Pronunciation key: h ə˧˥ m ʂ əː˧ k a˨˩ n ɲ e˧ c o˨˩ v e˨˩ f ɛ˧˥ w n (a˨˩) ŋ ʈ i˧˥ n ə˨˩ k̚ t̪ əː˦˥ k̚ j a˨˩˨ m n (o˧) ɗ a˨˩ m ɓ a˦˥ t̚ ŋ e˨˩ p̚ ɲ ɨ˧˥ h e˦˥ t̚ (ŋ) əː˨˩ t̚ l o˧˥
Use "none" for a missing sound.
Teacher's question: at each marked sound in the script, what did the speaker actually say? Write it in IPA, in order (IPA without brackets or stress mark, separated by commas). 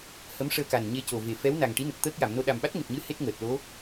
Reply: a˨˩, o˧, ŋ